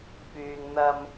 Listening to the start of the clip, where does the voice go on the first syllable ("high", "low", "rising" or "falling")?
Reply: low